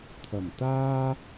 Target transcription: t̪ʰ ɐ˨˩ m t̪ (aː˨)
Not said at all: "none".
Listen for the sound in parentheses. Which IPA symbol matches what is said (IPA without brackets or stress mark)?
aː˥